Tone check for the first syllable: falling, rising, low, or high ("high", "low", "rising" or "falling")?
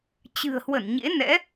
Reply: low